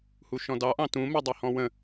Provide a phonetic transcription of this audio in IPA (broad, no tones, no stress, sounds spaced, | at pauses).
h u ʃ ɔ̃ d ɑ ʔ ɑ̃ t ũ m ɜ dˤ ɜ h ɔ̃ w ə̃